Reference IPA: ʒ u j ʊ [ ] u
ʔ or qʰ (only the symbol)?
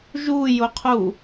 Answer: qʰ